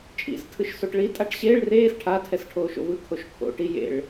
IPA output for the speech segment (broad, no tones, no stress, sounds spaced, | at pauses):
t͡ʃʼ ḭ s tʰ ɯ ʃ s o ʈ ɭ i tʼ a ʈ ɕ eː ɭ r eː s ʈʰ a tʰ ɛ s ʈʰ oː ʃ o̰ v ɯ kʰ o ʃ kʰ o̰ ʈ i j ḛ ɭ